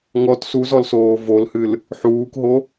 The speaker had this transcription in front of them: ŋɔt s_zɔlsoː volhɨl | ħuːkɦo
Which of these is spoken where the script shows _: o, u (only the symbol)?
u